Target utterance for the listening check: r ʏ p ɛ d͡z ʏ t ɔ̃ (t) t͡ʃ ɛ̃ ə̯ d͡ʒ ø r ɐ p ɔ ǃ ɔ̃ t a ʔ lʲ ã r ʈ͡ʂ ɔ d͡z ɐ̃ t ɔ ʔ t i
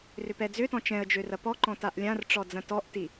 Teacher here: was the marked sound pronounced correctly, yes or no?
no